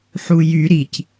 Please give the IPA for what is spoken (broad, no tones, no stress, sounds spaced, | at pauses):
ħ u j y ɾ i c